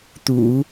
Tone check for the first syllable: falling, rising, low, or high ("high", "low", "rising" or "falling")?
low